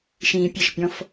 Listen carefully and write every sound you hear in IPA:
ʃ ĩː pʲ ə ʃ pʲ ɔ̃ f

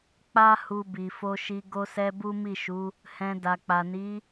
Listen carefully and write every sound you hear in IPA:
k͡p a˦ h u˧ b i˨ f o˧ ʃ i˧ ɡ o˧ s ɛ˧ b u˦ m i˦˨ ʃ u˨˦ | h ɛ̃˧ d a˨ k͡p a˨ n i˨˦

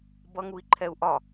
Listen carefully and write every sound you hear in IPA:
b ʌ ŋ u i̯ ǃʰ ɛ u̯ ʔ ɒ

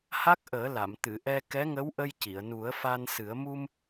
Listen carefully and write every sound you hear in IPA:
h a˦˥ k̚ ʔ əː˨˩˦ l a˨˩˨ m t̪ ɨ˨˩˨ ʔ ɛ˧ k ɛ˧˥ ŋ ə˧˥ w ʔ ə˧ j c i˨˩˨ ə̯ n u˨˩˦ ə̯ f a˧ n s ɨ˨˩˦ ə̯ m u˧ m

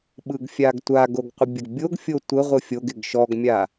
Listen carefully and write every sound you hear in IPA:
ɓ ɯ ɡ fʲ a ɡ tʷ a ɡ o ɡ qʷ ɪ bʲ ə ɡ bʲ o ɡ fʲ o tʷ ə ʁʷ ɯ fʲ o ɡ ɪ ɡ ʃ ɔ ɡ mʲ a

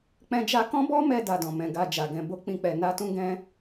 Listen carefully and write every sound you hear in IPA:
k͡p ɛ̃˧ d͡ʒ a˧ k ɔ̃˦ b ɔ˦ m ɛ˧ d a˧ d ɔ̃˨ m ɛ̃˧ ɡ a˧ d͡ʒ a˨ ɡ ɛ̃˧ b o˦ k͡p ĩ˧ k͡p ɛ˨ n a˧ t ũ˧ ɡ ɛ̃˧

